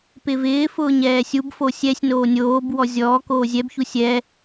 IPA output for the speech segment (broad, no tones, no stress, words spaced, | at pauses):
pɪvɪːfʊː ɲɛːsʲubfo sʲɛsʲnoː nʲoːb wɔzʲɔːkoː zʲɛbçu sʲɛ